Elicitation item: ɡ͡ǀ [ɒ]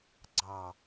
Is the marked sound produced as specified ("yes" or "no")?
no